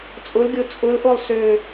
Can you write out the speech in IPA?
t͡sʼʊlɡʲo t͡sʼʊlʔolˠ sø

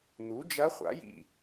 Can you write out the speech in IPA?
n̪u˩˥d͡ʒɐ˧˥χʷa̰˩˥jḭ˧˩

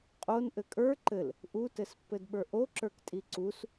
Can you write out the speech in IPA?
qʼon ʔɘkʼə˞ ǃɘl | ʔutɘspːɘdɓə˞ ʔoǁə˞ktʼi ǀus

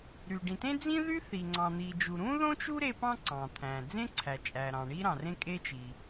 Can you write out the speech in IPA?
ɾy˩ɖĩ˩tẽ˥d͡zĩ˥ ðy˥θi˩ ŋ͡ǀɑ̃˩n̪i˩d͡ʒu˩ ɾũ˥ðõ˥t͡ʃu˥ ɾe˥ pɑ̃˥ǀɑ̃˩t̪ʰæ̃˩ d͡zẽ˥ǀʰæ˩t͡ʃʼæ˩ɾɑ̃˩ ɳi˥ɾɑ̃˩rẽ˥ kʼe˥t͡ʃi˩

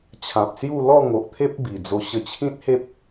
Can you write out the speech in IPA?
t͡ɕʰã˨p̚sju˥˧ lɔ˥˧ŋo˨ʔt̪ʰe˦p̚ bi˨˩ d͡zo˧ɕə˧t͡ɕʰĩ˦t̚he˦p̚

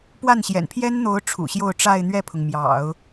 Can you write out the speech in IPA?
pwa˥˩nɕjɛ̰˨˩n pʰjɛ˥nn̪o˧˥ʊ̯ ʈ͡ʂʰṵ˨˩ɕjo˥˧ʊ̯ ʈ͡ʂa˥˧ɪ̯n̪ɥɛ˥˩pʰʊ˩ŋ mjɑ̰˨˩˦ʊ̯

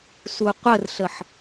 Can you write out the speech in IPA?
suqʷərɬəħ

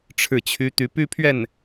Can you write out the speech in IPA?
ʈ͡ʂʰɻ̩˥˩t͡ɕʰy˥ t̪y˧˥py˥ pʰɥɛ˥˩n

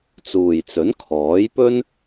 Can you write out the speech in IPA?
t͡suː˨jt͡sɵ˨˥n kʰɔː˨˥jpɵ˥n

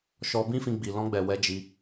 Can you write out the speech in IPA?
ʃɔ˧ bĩ˦fĩ˧ ɡ͡bi˨lɔ̃˧ɡ͡bɛ˨ wɛ˨˦d͡ʒi˧

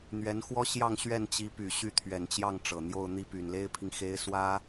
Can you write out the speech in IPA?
n̪ɥɛ˧˥nxwɔ˥ ɕjɑ˥˧ŋɕɥɛ˥˩nt͡ɕi˧˥ py˨˩ɕy˥˩t̪ʰɥɛ˨˩nt͡ɕjɑ˥˩ŋ ʈ͡ʂɤ˨˩ n̪jo˥˧ʊ̯ n̪i˥˩ py˨˩nle˥ɪ̯pʰi˨ŋ xe˥ɪ̯swä˥

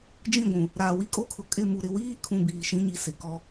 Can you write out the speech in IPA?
d͡ʒĩ˦˨ɡʷũ˨ | ɾaː˨wi˦kʼo˦kʰʊ˨ kʼɪ˦˨mu˨ ɾɪ˨wiː˦kʰũ˨ biː˨ʃĩ˦ɲi˨ sɪ˨kɔ˦

